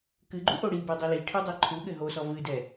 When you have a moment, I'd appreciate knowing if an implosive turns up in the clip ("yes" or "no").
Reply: yes